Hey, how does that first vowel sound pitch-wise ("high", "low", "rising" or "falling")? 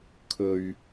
low